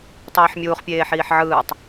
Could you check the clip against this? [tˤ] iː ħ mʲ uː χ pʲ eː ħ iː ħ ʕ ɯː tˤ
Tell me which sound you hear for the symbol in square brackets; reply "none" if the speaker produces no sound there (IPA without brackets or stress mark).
tˤ